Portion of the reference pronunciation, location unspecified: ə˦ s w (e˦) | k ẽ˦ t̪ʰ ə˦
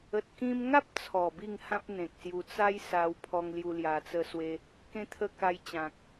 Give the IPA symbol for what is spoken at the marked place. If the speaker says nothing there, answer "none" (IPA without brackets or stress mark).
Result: e˦